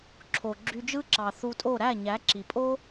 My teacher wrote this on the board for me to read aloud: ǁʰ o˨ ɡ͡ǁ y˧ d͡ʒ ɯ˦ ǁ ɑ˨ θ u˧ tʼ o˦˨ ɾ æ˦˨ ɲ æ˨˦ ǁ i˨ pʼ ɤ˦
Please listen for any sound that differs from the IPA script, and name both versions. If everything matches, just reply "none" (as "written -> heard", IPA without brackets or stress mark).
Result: ɤ˦ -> o˦